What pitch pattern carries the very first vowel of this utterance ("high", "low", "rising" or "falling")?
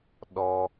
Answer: high